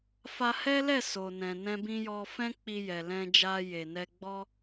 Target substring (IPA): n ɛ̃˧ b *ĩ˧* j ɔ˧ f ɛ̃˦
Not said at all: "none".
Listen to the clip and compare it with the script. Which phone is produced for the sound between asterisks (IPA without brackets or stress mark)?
ĩ˧